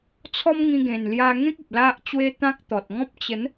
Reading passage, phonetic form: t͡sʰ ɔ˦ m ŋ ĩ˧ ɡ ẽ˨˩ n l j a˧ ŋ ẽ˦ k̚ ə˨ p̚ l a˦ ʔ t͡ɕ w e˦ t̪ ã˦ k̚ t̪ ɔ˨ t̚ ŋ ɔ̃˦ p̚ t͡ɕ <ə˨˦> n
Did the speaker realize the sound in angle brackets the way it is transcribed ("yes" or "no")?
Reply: yes